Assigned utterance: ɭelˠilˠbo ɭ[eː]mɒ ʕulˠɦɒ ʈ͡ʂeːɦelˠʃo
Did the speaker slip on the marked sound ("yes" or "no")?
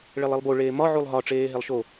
no